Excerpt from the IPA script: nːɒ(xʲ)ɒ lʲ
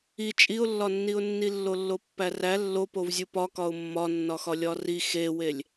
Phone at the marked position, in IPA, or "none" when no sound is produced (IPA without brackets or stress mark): x